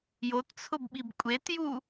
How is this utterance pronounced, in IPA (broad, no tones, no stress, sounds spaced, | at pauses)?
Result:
j o t t͡sʰ ʊ b ɓ i b kʷʼ e t j u